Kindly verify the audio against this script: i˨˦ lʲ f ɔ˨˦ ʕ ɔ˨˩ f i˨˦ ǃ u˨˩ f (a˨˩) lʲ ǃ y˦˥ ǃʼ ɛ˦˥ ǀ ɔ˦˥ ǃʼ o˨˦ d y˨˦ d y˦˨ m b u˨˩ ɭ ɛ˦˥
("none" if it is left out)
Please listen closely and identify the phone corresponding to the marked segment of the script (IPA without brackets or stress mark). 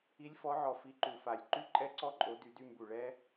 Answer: a˨˩